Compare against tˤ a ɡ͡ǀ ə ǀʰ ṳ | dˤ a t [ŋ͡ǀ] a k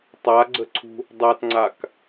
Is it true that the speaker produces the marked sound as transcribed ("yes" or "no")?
yes